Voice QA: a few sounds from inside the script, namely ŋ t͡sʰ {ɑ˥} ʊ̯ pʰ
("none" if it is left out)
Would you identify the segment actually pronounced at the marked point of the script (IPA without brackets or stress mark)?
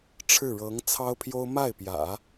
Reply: ɑ˥